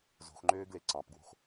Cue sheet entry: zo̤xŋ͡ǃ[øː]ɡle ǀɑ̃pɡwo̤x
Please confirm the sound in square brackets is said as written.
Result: yes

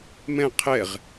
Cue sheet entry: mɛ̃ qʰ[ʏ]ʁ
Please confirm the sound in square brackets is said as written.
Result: no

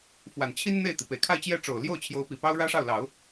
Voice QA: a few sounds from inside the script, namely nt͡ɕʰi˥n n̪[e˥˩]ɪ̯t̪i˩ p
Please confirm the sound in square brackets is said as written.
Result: yes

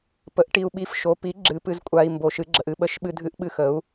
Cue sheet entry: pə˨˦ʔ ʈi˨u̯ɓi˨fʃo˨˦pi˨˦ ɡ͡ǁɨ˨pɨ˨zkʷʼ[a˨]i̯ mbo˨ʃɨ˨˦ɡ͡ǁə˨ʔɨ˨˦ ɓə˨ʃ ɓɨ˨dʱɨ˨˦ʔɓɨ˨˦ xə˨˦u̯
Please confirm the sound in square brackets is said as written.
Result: yes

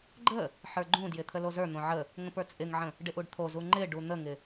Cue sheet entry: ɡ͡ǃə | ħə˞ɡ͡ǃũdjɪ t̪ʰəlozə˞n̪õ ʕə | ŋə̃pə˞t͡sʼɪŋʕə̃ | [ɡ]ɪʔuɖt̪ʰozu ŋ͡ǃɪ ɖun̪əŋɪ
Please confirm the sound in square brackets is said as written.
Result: no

